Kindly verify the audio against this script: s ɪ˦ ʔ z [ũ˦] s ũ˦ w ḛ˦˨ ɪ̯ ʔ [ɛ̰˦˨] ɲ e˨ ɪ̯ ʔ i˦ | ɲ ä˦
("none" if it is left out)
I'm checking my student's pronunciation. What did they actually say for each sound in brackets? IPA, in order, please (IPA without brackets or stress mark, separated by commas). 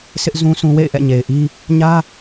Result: ũ˦, ɛ̰˦˨